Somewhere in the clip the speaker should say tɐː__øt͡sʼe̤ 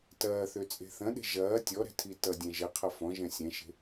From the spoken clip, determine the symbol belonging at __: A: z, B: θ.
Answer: B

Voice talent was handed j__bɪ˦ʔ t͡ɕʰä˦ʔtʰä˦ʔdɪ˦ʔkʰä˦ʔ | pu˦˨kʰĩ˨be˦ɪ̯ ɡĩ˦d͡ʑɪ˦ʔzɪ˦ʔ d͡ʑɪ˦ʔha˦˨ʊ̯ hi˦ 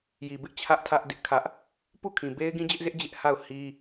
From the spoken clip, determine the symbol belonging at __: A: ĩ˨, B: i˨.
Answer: B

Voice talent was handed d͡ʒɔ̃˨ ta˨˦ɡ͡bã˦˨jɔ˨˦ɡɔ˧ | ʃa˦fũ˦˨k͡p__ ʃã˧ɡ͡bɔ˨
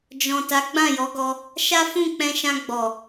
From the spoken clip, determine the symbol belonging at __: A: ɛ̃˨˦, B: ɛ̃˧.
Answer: B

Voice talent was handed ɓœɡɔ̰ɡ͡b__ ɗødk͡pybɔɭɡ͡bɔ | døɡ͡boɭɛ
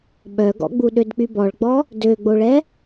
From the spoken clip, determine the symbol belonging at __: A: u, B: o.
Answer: A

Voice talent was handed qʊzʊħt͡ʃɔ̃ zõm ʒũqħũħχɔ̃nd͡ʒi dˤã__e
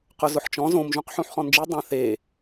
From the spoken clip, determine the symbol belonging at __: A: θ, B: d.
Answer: A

